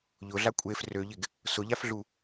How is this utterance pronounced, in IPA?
ʎ ʊ ɮ a kʷʼ e f r ø ʎ ɪ ɡ | s ʊ ʎ a f ɮ u

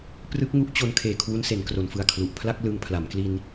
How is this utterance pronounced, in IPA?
p r ɯ˦˥ k̚ ŋ u˦˥ ʔ t͡ɕ o˧ n kʰ eː˨˩ kʰ w u˧ n s e˩˦ n k r o˩˦ n f ɯ˨˩ a̯ kʰ l u˨˩ ʔ pʰ l a˥˩ k̚ l ɯː˧ ŋ pʰ l a˩˦ m k l i˧ n

